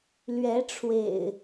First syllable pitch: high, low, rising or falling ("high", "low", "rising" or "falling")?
rising